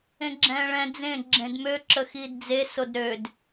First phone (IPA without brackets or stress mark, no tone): ẽ